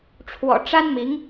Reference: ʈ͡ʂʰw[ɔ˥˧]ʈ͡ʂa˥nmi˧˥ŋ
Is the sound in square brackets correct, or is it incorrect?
incorrect